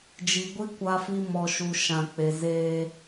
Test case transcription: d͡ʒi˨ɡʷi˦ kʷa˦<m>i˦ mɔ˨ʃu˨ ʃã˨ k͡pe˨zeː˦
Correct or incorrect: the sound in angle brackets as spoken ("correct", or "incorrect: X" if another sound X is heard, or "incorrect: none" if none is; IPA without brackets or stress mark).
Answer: incorrect: f